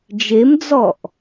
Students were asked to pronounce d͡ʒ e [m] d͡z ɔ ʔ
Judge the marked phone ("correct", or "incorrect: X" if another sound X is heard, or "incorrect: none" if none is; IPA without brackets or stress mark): correct